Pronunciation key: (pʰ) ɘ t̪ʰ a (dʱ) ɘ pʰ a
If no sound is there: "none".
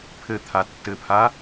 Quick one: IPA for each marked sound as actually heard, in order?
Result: pʰ, tː

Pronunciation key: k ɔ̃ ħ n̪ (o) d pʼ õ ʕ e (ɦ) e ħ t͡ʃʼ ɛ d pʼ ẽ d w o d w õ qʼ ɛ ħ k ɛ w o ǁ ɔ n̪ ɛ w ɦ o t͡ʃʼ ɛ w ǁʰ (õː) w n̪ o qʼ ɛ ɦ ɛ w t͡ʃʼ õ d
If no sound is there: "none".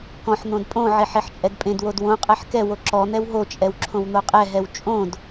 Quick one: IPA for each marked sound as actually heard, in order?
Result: õ, ħ, õ

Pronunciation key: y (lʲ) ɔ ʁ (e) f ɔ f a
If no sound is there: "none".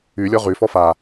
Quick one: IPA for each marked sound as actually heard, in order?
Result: lʲ, y

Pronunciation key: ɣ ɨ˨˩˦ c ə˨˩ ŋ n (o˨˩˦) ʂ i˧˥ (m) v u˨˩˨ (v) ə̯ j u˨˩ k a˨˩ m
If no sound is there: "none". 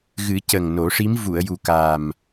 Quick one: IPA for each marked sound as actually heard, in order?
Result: o˨˩˦, m, none

